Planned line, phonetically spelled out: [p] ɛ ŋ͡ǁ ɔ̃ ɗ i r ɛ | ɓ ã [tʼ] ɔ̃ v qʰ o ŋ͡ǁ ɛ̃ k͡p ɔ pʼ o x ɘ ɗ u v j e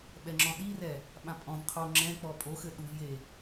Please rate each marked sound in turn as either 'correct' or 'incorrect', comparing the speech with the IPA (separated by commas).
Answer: incorrect, incorrect